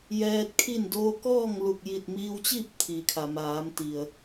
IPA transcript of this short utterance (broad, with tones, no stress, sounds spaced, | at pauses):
j ɛː˧ t̚ kʰ i˥˨ n d oː˧ k ɔː˥˨ ŋ l u˧˩ k̚ j i˧˩ t̚ m iː˧ w t͡ɕ iː˥˨ p̚ t̪ʰ i˩ kʰ a˩ m aː˩˧ m t̪ i˩ ə̯